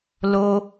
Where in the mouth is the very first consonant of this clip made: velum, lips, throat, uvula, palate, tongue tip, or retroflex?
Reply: tongue tip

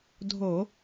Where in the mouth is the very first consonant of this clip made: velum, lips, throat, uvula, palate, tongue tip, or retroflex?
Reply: tongue tip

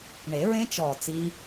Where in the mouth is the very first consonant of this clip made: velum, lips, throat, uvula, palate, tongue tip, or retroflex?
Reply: retroflex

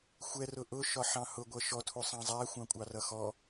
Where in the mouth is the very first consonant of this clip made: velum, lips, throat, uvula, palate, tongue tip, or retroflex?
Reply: velum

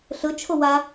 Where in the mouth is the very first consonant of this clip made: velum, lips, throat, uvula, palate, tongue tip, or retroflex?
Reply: tongue tip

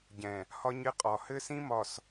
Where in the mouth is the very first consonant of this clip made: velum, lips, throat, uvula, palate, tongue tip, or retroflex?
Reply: palate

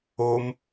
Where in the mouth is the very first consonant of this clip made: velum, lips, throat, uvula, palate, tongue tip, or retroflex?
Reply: lips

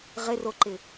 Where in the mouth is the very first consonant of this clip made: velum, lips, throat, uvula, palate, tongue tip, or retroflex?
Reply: uvula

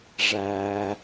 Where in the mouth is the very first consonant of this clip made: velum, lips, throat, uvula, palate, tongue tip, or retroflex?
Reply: retroflex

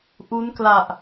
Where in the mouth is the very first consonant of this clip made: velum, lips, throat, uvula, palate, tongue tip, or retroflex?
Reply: throat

